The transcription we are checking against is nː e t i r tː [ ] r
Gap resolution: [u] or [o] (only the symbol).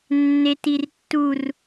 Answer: u